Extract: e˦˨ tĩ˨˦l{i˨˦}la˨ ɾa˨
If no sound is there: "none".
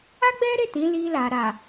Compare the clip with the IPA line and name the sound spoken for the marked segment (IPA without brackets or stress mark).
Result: i˧